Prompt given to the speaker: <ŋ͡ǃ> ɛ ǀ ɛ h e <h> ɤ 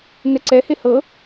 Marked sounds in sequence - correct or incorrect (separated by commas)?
incorrect, correct